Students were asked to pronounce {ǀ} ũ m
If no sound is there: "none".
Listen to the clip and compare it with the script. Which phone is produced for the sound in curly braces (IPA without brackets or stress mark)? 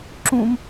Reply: ǁ